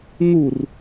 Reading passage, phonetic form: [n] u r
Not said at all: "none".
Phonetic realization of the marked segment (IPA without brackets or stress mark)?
n